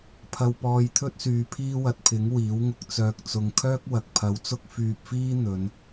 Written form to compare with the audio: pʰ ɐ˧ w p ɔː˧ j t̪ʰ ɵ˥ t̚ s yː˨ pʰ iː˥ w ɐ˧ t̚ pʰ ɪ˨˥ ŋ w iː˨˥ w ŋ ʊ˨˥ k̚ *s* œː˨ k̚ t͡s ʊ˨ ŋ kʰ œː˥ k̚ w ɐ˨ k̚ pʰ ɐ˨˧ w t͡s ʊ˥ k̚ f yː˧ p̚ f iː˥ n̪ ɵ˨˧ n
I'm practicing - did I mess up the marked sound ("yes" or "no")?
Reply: yes